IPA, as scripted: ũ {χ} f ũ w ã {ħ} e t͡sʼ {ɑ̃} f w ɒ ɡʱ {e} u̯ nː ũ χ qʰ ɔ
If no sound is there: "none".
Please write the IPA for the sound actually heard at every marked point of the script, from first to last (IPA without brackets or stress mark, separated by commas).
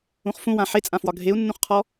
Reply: χ, ħ, ã, e